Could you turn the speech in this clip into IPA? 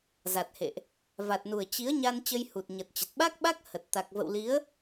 za˨˩t̚hḛ˧˨ʔ | va˨˩t̚nu˨˩ə̯ t͡ɕi˨˦ə̯ɲa˧n t͡ɕə˧jhu˨˩t̚ɲə˨˩t̚t͡ɕə˨˩t̚ ɓa˦˥k̚ɓa˦˥k̚hə˨˩t̚ t̪a˨˩k̚və̰˧˨wli˨˦ə̯

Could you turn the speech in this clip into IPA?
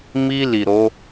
mi˧ li˨ɾo˨˦

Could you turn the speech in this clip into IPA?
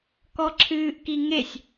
kɔǁʰɨːʔkiŋesʲ

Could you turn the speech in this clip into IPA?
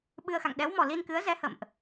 ɓɨ˧ə̯xa̰˧˨ŋ ɗɛ˨˦wmɔ˨˩ li˧nkɨ˨˦ə̯zɛ˨˦ hə̰˧˨mʔ

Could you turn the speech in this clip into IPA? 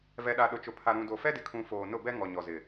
vɛ˨ɗa˨ ɗʊ˨t͡ʃʊ˨ pʰa˨ɾũ˨do˨ fɛ˦dɪ˨kʰũ˨ foː˨nʊ˦˨bɛ˦ ŋɔ˨ ɲɔ˨zɪ˨

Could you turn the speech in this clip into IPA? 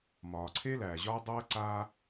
mɒː˩ǀʰe˥læː˩ ʑɒː˥ dˤɤː˥ ǀaː˥

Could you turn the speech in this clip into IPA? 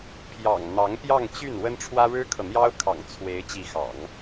pʰjɑ̰˨˩ŋ n̪ɑ˧˥ŋpjɑ˥˧ŋ t͡ɕy˥˩n wə˥nʈ͡ʂʰwä˥ ɻɻ̩˥kʰɤ˨n̪jɑ˥ʊ̯kʰɑ̰˨˩ŋ t͡sʰwe˧˥ɪ̯ t͡ɕi˧˥xɑ̰˨˩˦ŋ

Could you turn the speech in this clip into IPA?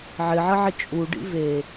ʕɪʕəʕɪ t͡ʃʼu ɖḭve

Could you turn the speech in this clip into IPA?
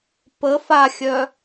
pə faxʲœ

